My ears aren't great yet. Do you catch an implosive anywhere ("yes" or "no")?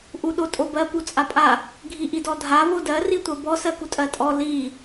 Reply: yes